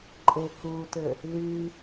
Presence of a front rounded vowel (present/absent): present